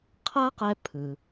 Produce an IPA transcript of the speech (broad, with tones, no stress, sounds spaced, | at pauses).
qʰ a˥ q ɛ˧ pʰ ɯ˩